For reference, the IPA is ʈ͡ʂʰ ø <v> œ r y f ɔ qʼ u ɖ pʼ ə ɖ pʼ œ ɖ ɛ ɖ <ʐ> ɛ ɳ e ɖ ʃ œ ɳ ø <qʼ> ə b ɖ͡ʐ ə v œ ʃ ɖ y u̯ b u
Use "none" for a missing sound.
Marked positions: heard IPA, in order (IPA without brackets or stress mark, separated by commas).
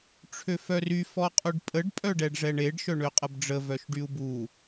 f, ʐ, qʼ